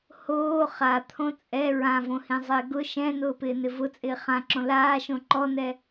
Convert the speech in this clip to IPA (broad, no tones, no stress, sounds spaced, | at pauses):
h oː χ a t̪ʰ õ t͡sʼ ɛ ɹ ã v õ h ĩ zˤ ɪː ɡ ʊ ʃ ɛ̃ n ʊː p ɪː n ɪ v ʊ t͡sʼ ɪː χ ã ǁ õ l aː ʃ õ ǃ ɔ n ɛ